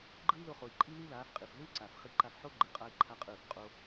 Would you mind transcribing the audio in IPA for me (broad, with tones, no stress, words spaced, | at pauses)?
ɡ͡ǃɯ˦i̯lo˧χo˨i̯ǃʼi˦ li˦laː˨˦fqʼi˨f lɯː˦ǀaː˨fχi˧ǃa˧f ħo˦ɡ͡ǃɯ˨ qʼa˦i̯ǃʰa˦qʼɯː˦˨f qʼo˦